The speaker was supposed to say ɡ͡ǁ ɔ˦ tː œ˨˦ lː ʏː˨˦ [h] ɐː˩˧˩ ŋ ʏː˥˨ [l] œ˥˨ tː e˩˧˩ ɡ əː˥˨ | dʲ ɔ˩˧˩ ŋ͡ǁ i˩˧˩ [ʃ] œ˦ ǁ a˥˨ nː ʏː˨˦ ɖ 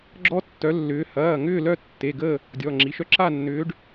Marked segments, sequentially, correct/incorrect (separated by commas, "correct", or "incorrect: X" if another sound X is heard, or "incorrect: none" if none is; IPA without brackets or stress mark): correct, correct, correct